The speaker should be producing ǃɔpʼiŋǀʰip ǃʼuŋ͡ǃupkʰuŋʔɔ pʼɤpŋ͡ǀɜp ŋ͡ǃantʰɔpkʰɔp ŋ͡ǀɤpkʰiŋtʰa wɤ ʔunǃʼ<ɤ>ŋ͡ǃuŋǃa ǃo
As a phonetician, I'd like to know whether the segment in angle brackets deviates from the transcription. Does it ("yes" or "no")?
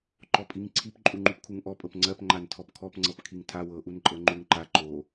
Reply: no